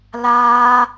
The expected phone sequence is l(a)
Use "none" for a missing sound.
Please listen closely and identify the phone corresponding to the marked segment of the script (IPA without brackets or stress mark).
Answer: aː